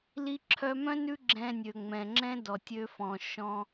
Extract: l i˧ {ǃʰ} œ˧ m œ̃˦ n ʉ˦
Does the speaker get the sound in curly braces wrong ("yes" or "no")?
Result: yes